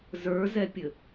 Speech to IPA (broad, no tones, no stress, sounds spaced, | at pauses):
z ə˞ z ɛ pʲ ɘ